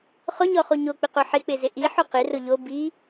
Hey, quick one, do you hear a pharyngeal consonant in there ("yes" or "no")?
yes